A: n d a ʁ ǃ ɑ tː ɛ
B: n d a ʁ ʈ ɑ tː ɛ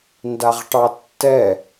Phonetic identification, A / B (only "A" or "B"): B